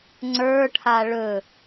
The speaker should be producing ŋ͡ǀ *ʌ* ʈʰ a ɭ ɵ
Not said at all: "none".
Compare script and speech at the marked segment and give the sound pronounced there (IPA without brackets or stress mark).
ə˞